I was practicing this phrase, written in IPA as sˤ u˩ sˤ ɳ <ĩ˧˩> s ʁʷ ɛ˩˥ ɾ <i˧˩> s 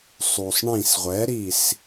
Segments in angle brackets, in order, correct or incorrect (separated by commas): correct, correct